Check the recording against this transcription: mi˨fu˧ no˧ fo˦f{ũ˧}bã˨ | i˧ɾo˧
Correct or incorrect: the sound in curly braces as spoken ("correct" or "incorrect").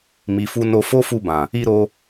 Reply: incorrect